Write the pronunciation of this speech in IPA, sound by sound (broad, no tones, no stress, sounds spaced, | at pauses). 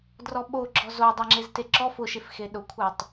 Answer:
d r ɔ ɓ o ɡ͡ǁ ɔ z o dˤ e ŋ͡ǁ e z t e ǁ ɔ f ʊ ʃ e f x e ɗ ʊ kʷʰ a tˤ